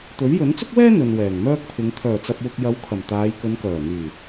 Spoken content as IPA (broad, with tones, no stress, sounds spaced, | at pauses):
t̪ ɵ˨˥ ɥ j ɵ˨˥ n t͡s ʊ˥ k̚ w ɛː˥ n̪ ɵ˨ n w ɛː˨˩ ŋ m œː˥ k̚ pʰ ɪ˨˧ ŋ t̪ʰ œː˨˩ t͡s ɐ˨ p̚ w ʊ˨ k̚ j ɐ˨˥ w kʰ ɐ˨˩ m t̪ aː˨˧ j k ɵ˨˧ n k œː˨˩ n̪ yː˨˩